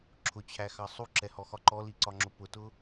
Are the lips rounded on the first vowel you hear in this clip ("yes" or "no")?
yes